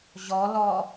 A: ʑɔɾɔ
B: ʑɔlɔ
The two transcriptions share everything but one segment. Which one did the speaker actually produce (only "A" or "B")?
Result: B